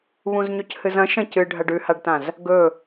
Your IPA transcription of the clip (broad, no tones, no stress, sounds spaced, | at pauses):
β ũ z ɲ ɵ c h ɨ z ɐ̃ ʃ ɐ̃ c ɨ ɖʱ ɐ ɖ ʉ h a ɖ t ã z | ɡ ɵ